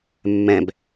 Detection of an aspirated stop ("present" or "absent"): absent